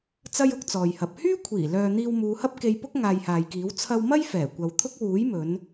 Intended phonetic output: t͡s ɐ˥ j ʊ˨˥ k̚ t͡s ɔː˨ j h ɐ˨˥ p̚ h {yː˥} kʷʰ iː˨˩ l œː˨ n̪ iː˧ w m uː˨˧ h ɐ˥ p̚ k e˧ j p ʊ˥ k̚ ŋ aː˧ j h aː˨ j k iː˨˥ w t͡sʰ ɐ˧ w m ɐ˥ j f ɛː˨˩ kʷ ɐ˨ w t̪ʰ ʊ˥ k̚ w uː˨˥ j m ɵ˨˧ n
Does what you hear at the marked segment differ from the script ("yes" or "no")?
no